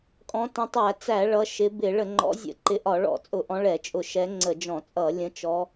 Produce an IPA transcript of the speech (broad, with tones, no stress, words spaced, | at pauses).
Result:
kʼɔ̃˨˦ tə̃˨˦tˤæ˧˩˧t͡sæ˧˩˧ ɭʌ˨˦ʃɪ˨˦ bɪ˧˩˧ ɭə˧˩˧ŋ͡ǃɔ̰˨˦zʲə̰˧˩˧ǃɪ˨˦ ʔɒ˧˩˧ɭɔ̰˧˩˧t͡sʼʊ˧˩˧ʔɔ̃˨˦ ɭɛ˧˩˧t͡ʃʼʊ˧˩˧ʃɛ˨˦ ŋ͡ǀə˧˩˧d͡ʒɔ̃˧˩˧t͡sʼʌ˧˩˧ lʲə̃˨˦t͡ʃɔ˨˦